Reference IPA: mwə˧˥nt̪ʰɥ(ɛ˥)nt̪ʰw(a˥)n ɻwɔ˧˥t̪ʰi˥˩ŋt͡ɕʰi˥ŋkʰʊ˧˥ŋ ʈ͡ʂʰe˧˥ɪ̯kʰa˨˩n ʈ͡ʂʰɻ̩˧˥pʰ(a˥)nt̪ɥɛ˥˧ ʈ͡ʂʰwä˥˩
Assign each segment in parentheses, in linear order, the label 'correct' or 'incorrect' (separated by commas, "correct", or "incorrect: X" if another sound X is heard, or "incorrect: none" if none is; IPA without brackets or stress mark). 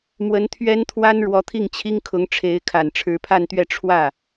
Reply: correct, correct, incorrect: a˥˧